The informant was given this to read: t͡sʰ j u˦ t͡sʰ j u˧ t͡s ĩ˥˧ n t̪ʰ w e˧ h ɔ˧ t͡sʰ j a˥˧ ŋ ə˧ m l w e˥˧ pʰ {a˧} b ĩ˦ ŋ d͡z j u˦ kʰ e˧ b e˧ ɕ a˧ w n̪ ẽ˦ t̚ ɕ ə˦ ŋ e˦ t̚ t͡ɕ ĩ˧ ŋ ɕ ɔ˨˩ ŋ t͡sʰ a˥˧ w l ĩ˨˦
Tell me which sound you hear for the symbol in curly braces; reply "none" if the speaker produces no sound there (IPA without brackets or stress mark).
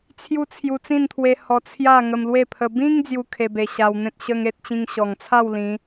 ə˧